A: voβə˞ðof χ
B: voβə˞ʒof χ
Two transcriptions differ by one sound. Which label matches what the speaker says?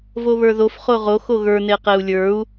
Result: A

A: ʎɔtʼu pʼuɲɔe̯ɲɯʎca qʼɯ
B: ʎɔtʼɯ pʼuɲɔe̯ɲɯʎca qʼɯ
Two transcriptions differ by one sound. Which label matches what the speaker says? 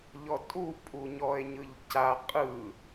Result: A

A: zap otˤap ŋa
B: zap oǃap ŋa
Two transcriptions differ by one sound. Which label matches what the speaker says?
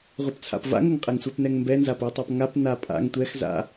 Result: A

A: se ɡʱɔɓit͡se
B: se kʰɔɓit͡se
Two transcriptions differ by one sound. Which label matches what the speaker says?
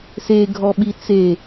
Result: A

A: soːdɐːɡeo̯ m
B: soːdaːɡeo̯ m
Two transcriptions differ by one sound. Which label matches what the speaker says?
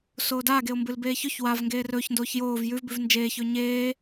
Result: B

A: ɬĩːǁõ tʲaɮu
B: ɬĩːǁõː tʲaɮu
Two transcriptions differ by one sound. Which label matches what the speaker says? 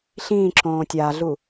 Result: B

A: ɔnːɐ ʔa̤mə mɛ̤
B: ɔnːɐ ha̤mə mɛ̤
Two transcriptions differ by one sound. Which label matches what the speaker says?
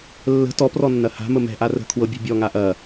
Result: B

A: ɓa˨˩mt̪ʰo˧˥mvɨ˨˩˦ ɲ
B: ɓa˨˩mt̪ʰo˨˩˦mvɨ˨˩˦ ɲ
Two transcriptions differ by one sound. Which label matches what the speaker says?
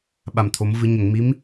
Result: B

